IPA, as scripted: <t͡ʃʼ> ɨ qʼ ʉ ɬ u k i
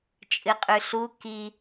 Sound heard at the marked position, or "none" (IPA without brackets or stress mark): t͡ʃʼ